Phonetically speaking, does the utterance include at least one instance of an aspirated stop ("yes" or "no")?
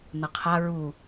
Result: yes